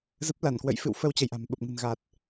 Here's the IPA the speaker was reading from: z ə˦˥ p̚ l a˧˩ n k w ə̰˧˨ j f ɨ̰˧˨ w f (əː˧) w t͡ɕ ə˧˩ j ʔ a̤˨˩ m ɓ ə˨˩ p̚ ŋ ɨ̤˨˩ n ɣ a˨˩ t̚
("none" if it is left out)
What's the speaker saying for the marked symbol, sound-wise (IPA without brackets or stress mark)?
ə˧